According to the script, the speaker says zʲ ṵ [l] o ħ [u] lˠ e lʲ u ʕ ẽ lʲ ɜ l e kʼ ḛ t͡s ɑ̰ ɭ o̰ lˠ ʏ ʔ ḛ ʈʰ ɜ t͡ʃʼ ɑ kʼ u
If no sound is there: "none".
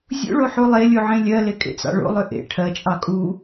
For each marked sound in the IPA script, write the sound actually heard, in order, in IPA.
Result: ɭ, u

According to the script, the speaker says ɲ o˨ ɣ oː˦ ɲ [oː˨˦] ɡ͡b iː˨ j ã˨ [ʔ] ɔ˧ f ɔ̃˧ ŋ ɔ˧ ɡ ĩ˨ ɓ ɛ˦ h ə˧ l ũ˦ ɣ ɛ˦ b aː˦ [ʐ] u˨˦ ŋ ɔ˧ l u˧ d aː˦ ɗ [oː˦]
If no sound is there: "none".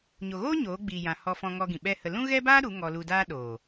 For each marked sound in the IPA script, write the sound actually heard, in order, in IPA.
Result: oː˨˦, h, ɾ, oː˨

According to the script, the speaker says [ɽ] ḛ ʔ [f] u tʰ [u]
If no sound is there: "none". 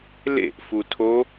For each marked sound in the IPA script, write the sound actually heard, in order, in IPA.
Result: l, f, o

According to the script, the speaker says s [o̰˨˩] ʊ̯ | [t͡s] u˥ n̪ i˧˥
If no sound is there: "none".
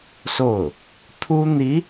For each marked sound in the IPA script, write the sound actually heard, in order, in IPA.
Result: o˥˩, t̪ʰ

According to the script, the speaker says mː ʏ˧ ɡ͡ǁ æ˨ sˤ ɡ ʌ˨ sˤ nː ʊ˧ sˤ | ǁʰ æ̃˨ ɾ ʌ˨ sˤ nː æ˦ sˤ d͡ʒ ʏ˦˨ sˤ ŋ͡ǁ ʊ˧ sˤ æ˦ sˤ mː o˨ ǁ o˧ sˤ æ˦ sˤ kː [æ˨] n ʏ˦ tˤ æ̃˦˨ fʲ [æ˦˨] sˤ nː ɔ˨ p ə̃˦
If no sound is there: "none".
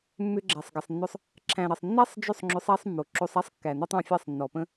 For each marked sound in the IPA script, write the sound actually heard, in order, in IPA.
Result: æ˨, æ˦˨

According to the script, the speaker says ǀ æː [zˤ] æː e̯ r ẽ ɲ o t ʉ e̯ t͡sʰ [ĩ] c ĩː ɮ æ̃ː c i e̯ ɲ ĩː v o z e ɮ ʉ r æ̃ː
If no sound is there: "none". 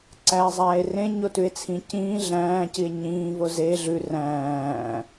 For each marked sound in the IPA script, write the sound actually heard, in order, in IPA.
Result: zˤ, ĩ

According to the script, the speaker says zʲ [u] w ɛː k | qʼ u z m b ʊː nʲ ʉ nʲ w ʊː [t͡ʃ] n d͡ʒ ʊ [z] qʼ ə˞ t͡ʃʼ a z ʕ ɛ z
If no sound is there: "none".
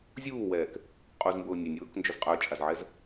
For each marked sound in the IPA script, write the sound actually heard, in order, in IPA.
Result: uː, k, z

